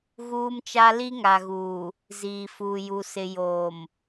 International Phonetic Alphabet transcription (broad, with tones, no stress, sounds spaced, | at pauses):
ɣ uː˦ m t͡ʃ a˦ l i˦ ŋ a˨ ɣ uː˨ | z iː˨ f uː˨ j u˨ s ɪ˨ j oː˨ m